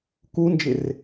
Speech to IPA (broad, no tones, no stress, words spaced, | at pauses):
kund͡ʒɪr